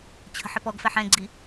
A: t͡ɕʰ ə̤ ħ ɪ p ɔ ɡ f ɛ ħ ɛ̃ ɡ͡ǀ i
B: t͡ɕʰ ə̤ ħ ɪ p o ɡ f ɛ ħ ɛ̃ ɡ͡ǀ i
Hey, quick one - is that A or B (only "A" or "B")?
A